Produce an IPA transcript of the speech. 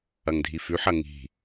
ɐ ŋ dʱ i f ʉ ħ ɐ ŋ i̤

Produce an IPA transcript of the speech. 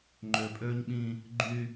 ŋ͡ǃ ø˨ pʼ øː˦ ɲ ɓ ĩ˦ | ɡ͡ǃ y˦

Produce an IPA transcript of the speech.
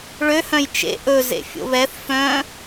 ɭ ø h œ̃ j t͡ʃ ḛ ʔ ɵ z ḛ fʲ o̰ β ɛ θ f œ̃

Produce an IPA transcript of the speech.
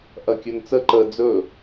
ʔ ɐ kʲ ɵ n t͡s ə ǃ ə d͡z ɵ

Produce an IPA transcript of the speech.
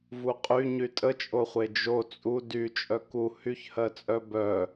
v u qʼ y ɲ y tʼ ə t͡ʃʼ o χʷ e d͡ʒ o t͡sʼ u d y t͡ʃʼ œ k u h y ç h ɜ t͡sʼ œ b œ

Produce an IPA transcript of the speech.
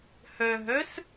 h œ ɦ œ s

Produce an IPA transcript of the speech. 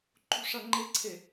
ǃ ṳ ʂ ʌ ŋ͡ǃ ɪ ǀʰ e

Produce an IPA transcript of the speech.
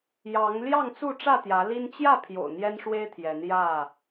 j ɑ˨˦ ŋ l j ɑ˥˨ ŋ t͡s u˥˨ ʈ͡ʂ ä˥˨ t̪ j ä˨˦ l i˦ n t͡ɕ j ä˥˨ pʰ j o̰˨˩ ʊ̯ n̪ j ɛ˦ n ʂ w e˦ ɪ̯ t̪ʰ j ɛ˨˦ n j ä˥˨

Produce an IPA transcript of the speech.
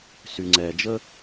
s y˩ ŋ͡ǀ ɛː˩ d͡ʒ ə˧

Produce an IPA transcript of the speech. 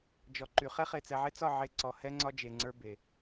d͡ʒ ɔ˨ ǃ y˨ χ ɛ˦ χ e˨ t͡s ɛ˨ ʕ e˦ t͡s ɒ˦˨ ʕ e˦ ǀ ɔ˨ h ɛ˦ ŋ͡ǀ ɒ˦ d͡ʒ e˨ ŋ͡ǀ ə˞˦ b e˨

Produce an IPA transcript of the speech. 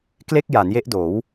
k l e˥˩ k̚ j a˩˦ n j e˦˥ ʔ d oː˩˦ w

